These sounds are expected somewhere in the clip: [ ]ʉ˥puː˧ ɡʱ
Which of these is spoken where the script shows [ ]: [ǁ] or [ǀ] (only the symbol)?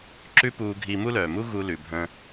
ǁ